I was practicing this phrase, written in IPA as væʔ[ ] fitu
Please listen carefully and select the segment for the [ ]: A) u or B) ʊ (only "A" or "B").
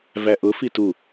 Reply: B